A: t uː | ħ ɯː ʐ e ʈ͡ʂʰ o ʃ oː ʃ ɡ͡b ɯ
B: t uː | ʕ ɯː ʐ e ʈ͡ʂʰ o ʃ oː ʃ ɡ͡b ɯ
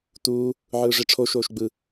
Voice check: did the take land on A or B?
B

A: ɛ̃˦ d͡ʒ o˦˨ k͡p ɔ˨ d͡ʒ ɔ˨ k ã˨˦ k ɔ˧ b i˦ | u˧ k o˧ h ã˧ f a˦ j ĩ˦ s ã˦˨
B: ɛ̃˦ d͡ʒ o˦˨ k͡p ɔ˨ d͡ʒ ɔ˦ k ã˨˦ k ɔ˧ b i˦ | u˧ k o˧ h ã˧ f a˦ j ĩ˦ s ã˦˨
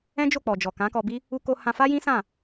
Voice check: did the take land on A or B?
A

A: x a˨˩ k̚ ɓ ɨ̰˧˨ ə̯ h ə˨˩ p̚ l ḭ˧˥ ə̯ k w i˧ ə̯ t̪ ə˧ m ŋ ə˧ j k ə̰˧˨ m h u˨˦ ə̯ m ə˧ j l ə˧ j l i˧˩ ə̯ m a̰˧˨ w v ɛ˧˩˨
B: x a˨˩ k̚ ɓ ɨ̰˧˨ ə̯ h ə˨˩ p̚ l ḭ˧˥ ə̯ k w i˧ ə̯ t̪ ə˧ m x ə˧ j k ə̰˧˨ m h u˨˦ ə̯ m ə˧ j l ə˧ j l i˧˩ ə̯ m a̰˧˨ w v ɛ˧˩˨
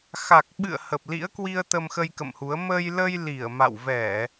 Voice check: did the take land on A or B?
B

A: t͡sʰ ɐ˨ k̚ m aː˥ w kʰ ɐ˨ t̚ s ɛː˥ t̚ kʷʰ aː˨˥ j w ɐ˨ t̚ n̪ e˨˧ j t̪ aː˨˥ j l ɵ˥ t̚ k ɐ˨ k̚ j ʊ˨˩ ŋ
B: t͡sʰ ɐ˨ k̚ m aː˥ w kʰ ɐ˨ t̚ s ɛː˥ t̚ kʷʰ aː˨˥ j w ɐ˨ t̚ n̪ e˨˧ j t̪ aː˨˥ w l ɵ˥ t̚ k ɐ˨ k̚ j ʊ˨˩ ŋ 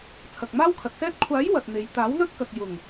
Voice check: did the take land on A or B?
B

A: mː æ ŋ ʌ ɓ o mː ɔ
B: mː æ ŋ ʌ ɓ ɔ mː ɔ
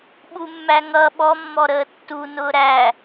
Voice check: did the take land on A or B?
B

